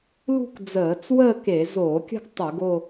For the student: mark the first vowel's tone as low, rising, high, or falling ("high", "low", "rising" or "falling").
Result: falling